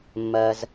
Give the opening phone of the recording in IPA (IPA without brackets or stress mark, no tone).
mː